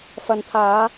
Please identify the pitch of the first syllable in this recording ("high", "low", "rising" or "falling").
low